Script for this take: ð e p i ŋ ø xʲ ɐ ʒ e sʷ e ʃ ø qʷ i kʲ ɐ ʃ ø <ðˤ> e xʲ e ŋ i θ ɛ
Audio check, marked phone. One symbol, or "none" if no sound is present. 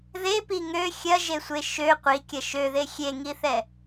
ð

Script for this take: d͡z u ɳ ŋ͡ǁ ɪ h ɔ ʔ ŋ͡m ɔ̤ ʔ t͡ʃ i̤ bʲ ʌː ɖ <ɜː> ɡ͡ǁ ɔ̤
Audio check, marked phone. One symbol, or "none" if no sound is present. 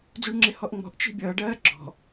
ɜː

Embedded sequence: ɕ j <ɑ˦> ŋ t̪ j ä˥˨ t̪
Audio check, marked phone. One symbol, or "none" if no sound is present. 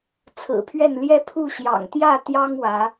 ɑ̰˨˩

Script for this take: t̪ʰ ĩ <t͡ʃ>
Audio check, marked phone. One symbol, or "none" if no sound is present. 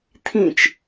t͡ʃ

